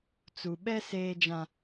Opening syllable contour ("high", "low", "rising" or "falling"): low